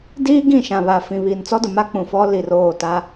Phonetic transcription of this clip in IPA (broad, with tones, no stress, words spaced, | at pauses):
diː˦ɡĩ˦˨ʃã˨ βa˨fĩ˨βiː˨n t͡sɔ˦dʊ˨ma˦ k͡pũ˨fɔ˦ li˨roː˦˨ ta˦